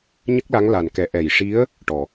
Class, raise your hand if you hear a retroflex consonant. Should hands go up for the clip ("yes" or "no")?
yes